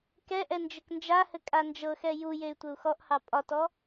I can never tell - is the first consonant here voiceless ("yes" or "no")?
yes